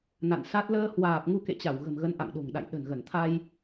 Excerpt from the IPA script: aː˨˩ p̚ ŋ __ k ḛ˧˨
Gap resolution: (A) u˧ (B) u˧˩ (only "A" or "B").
A